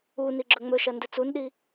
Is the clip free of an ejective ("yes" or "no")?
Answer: yes